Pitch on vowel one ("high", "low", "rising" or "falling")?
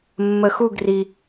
low